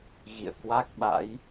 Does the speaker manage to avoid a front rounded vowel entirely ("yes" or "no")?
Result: yes